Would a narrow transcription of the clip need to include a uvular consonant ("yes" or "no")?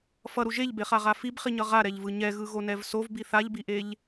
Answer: yes